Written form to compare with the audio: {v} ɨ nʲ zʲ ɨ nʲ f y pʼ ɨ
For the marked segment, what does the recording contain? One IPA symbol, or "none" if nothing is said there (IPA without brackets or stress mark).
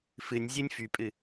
f